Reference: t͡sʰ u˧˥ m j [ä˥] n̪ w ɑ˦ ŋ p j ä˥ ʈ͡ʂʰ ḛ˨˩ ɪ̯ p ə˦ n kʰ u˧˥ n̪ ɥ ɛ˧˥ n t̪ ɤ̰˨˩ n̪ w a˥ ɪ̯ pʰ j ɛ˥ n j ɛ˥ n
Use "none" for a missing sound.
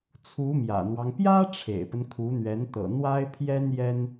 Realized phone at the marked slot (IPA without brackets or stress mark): ä̰˨˩